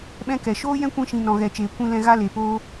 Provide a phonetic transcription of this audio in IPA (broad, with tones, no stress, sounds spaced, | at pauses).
ɓ ɛ̃˦ k ɛ˨ ʃ oː˦ j ɛ̃˦ kʷ ĩ˧ ʃ ĩ˨ n ɔ̃˨ ɣ ɛ˨ t͡ʃ eː˨ kʷ ĩ˧ l ɛ̃˧ ɣ a˦ l e˨ p oː˦